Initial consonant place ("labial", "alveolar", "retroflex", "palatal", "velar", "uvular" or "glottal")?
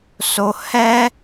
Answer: alveolar